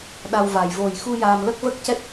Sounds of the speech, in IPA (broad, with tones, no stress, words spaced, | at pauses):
ɗa˧wva˨˩j vo˨˩jxu˧ jaː˧m lə˦˥k̚və˦˥k̚cɛ˦˥t̚